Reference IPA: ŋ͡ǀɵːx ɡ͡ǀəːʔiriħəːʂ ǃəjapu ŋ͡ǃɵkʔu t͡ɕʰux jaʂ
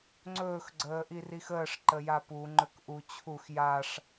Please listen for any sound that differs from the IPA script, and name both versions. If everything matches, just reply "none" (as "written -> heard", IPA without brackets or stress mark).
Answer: ħ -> x